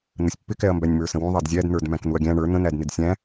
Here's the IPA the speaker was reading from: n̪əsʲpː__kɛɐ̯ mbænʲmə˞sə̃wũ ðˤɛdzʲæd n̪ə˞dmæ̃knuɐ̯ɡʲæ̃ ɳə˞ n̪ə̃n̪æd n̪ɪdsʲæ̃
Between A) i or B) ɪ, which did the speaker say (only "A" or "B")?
B